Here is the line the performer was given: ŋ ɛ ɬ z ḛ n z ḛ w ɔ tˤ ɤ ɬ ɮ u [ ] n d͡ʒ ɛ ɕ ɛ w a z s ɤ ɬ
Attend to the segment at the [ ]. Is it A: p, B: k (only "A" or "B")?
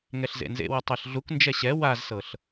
B